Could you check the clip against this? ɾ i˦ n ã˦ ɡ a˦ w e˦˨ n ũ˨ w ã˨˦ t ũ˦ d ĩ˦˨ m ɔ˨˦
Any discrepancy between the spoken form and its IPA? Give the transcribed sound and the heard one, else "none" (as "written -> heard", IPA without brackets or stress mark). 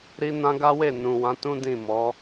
none